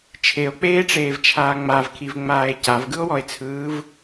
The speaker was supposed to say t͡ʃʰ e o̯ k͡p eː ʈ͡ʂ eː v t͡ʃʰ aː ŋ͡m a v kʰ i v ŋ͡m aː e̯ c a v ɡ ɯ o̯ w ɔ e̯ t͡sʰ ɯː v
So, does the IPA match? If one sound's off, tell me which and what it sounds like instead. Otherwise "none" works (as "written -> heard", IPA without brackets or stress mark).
none